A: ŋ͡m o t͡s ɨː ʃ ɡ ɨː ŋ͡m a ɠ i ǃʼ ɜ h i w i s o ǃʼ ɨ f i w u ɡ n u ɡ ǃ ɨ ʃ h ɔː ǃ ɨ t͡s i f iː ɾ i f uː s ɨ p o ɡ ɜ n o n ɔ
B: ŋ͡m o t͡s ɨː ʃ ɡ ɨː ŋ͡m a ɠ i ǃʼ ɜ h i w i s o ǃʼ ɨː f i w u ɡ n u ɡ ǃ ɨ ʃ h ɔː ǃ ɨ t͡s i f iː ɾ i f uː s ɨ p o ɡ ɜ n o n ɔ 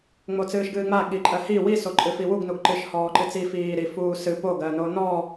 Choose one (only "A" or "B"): A